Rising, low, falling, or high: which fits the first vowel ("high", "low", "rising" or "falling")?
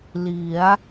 rising